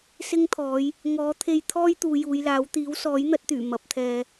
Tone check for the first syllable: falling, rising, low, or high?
high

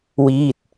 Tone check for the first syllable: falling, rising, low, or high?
falling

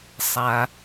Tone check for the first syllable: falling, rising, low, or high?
low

